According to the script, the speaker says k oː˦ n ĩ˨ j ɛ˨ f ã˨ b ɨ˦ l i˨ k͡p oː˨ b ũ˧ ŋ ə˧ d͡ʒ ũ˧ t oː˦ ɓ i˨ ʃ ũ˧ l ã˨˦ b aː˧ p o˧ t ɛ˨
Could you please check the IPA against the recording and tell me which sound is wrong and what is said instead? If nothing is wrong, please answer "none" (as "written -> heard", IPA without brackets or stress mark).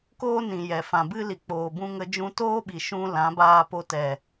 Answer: none